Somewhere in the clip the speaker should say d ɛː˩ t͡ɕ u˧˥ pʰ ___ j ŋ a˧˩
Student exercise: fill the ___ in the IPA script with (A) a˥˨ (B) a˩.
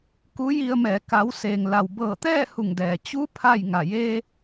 A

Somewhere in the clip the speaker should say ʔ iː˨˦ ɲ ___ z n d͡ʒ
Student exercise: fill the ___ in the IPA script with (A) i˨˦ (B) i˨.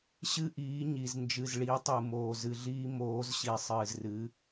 B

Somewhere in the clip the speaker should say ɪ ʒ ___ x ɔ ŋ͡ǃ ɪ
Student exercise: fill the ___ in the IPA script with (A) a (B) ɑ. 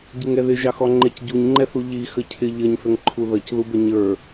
B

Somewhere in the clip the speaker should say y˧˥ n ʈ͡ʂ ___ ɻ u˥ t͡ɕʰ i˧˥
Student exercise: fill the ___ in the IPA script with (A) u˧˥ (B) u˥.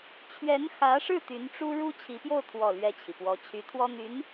B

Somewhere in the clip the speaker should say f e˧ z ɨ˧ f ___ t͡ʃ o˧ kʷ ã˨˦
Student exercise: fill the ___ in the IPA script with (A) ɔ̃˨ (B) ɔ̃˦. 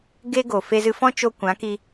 B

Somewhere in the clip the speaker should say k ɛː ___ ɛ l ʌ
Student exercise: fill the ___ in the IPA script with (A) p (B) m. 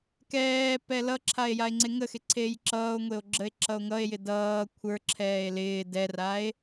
A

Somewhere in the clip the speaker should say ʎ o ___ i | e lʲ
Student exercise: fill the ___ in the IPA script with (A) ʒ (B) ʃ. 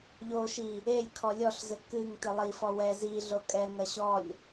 B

